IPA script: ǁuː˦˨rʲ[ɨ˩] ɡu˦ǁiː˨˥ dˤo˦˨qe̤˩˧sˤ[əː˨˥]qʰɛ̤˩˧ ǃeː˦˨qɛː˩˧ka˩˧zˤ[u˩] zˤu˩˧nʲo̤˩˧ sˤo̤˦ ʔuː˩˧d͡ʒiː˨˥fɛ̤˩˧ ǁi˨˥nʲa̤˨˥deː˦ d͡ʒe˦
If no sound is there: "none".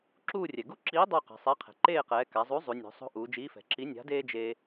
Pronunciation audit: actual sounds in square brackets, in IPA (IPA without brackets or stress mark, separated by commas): ɛ˩, ɛː˨˥, u˨˥